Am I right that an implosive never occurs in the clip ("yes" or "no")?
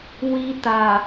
yes